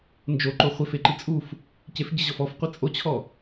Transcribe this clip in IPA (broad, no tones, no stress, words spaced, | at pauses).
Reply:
nd͡ʒoǃo χʷefeǃi t͡sʼuf | cef ɟɪʑɔf ɔfqʷi t͡sʼot͡ɕʰɔ